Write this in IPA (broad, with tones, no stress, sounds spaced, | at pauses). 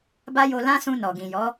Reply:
b a˦ j o˧ l ã˦ s ũ˧ n ɔ˨ ɡ ĩ˨ j ɔ˨˦